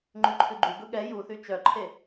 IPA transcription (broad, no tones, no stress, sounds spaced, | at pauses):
ŋ͡ǃ ʉ ǃʰ ʉ ɡ͡ǃ u ɡ ɵ ɠ ɛ j u θ y t͡ʃ œ ǃʰ e